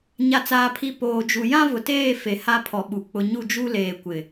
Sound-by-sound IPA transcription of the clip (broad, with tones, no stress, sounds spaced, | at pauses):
ɲ a˨ t͡s aː˨ pʰ i˨ p oː˨ d͡ʒ u˨ j ã˦ v ʊ˨ t eː˦˨ f e˨ h a˦ pʰ ɔ˨ ɓ u˨ k͡p ʊ˨ ɲ u˦˨ d͡ʒ u˦ l eː˨ kʷ ɪ˨